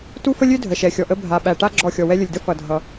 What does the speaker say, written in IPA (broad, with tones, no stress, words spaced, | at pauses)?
tu˦fə˦lʲø˦ dʱə˨ʃɛ˨xʲɔ˨ʔə˦ bʱa˨ɓæ˨ ʈa˦ ɡ͡ǁɔ˦˨xʲɔ˨wɛ˦ lʲə˨lʲdə˦ fʌ˨dʱʌ˨